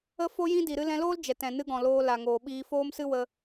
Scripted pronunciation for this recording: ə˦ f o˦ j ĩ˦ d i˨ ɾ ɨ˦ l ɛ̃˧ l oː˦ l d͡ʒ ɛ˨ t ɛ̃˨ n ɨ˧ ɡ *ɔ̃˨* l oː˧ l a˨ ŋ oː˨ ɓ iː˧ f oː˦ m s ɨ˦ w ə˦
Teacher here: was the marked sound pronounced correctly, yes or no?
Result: yes